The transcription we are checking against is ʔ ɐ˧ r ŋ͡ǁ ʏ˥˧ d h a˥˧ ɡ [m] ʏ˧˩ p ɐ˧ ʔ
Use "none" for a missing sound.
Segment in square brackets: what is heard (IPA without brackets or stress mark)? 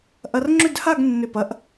nː